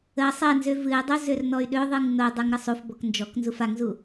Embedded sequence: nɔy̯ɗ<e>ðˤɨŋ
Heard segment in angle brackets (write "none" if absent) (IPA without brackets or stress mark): ø